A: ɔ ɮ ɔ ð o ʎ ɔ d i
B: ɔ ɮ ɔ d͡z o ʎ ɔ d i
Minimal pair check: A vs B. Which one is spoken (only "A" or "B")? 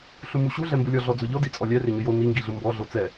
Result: B